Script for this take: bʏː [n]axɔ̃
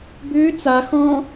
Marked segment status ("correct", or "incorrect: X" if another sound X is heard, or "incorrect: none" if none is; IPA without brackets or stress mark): incorrect: t͡s